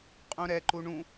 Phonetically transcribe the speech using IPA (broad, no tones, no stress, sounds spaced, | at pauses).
qʼ ũ ɾ ɛ ǃ u ɳ ũ